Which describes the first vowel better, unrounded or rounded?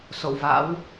rounded